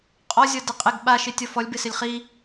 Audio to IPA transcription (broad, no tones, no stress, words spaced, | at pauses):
qʼɔzʲɔ dɪqʼɪɡ ɓaʃɪ tʲɔfɔlʲbɪsɪlʲ χi